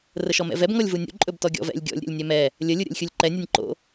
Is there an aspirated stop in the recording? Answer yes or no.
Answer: no